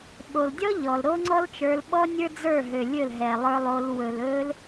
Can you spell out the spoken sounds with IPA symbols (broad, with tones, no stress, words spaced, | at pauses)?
ɓo˨ldʲɔ˦ ʎɔ˨lɾo˦ŋ͡ǀɔ˦lt͡ʃə˞˧l ɓɔ˦nʲə˞˦ d͡zə˞˦˨ɦø˨lʲɵ˦˨l ɦɛ˨lˠə˞˧lˠo˧l wɵ˨lɵ˧l